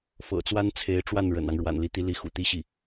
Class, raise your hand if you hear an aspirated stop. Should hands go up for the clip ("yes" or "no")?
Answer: yes